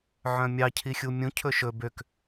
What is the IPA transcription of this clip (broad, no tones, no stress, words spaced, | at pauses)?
ʕœ̃mʲɑ cʰixʲumʲũ cʰɵʃɵ bøk